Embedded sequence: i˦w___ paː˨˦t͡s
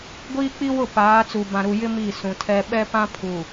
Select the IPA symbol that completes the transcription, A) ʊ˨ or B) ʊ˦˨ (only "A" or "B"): B